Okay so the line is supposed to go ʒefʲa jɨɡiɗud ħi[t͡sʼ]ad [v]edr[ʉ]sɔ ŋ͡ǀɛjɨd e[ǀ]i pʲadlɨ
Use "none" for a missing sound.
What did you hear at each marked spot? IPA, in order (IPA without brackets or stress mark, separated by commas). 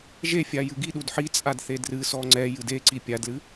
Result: t͡sʼ, θ, ɨ, ǀ